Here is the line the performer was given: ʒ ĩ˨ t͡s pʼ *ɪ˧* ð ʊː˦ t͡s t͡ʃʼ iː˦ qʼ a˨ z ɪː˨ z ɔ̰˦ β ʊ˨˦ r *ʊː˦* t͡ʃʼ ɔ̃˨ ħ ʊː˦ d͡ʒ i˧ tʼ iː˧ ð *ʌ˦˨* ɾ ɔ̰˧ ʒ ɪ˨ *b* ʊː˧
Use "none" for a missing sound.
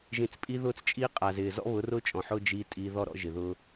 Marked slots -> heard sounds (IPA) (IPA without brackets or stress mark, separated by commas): i˧, ʊ˦, ɔ˦˨, ð